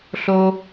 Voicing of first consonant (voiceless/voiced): voiceless